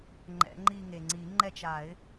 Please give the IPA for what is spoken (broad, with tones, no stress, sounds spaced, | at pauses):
ŋ͡ǃ ɛ̰˨˩˦ ŋ͡ǃ i˦˨ ŋ e˩ ŋ͡ǀ i˨˩˦ ŋ͡ǃ ɛ˦˨ t͡ʃ a˨˩˦ ɪ̯